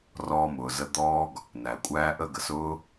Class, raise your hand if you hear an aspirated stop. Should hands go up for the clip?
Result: no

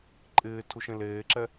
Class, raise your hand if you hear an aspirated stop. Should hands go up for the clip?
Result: yes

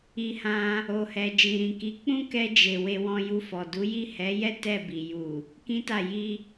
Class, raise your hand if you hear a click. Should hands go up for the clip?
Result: no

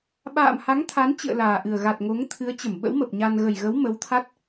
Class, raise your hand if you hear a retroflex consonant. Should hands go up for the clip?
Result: no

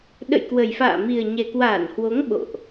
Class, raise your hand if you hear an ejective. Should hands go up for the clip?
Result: no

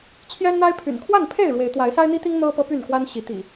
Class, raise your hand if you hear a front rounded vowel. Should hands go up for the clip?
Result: yes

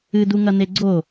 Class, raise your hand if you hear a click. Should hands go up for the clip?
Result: yes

